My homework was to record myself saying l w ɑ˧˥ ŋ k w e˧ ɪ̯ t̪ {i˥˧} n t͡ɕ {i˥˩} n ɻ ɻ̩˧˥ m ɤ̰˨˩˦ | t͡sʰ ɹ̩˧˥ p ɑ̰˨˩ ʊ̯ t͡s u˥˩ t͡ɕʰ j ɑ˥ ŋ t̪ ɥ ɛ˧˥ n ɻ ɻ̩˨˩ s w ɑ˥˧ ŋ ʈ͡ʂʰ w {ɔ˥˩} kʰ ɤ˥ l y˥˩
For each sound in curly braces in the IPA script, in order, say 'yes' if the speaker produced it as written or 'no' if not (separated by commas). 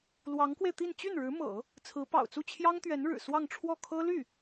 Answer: yes, no, yes